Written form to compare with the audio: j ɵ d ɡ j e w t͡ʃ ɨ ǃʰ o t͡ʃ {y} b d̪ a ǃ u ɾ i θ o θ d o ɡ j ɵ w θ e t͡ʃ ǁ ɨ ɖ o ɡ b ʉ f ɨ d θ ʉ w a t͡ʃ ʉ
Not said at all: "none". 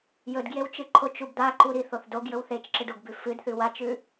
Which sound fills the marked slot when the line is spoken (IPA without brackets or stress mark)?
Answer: u